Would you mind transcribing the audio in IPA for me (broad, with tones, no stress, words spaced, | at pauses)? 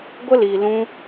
ɡʷə˦liː˨lũ˧